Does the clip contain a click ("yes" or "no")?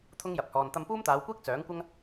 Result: no